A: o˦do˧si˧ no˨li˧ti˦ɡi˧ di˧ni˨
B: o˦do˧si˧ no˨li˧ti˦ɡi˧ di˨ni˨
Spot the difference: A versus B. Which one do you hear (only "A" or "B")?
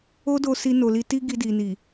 B